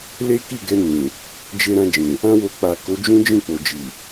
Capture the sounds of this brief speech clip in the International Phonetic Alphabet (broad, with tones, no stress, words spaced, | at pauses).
le˦ki˦˨ɡɛ˧ nĩ˨ | d͡ʒe˧ɾã˧d͡ʒĩ˨ | ã˦wo˧ k͡pa˨ ko˨˦d͡ʒũ˦ d͡ʒĩ˦˨k͡po˨ d͡ʒi˨